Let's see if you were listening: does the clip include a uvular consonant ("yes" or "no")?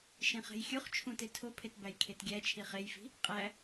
yes